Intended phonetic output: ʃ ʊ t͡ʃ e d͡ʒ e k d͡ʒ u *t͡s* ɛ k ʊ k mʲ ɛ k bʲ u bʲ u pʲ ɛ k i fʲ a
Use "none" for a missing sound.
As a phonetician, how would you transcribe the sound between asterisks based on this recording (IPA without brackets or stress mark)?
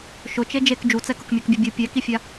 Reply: t͡s